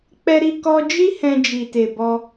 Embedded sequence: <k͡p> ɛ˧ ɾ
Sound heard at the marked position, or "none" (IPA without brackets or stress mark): k͡p